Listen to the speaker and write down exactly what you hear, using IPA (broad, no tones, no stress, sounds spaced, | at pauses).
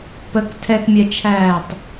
p ə k tʰ ɛ k mʲ ɛ t͡ʃʰ æː tˤ